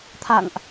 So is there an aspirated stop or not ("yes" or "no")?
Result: yes